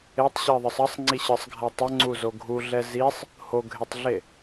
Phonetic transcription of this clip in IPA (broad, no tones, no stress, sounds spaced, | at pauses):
e tˤ ɕ i ðˤ ɯ sˤ ʌ sˤ ŋ͡ǀ i ɕ ɯ sˤ ɡʱ a tˤ ʌ ŋ͡ǀ u z o ɡʱ u ɮ ɛ z i sˤ | h o ɡʱ e tˤ ɮ e